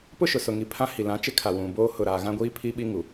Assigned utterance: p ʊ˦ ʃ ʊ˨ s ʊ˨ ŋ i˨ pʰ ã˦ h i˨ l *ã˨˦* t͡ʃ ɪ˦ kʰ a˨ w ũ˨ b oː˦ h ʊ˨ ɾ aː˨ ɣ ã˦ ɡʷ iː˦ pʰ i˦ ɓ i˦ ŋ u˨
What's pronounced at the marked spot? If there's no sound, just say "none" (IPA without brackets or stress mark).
ã˨˦